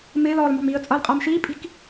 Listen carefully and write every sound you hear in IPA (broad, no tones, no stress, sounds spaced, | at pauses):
m ɪː l ɔː l m ɑ̤ m iː ə̯ t͡sʼ ʌː l qʼ ʌː m ʃ iː pʼ i̤ k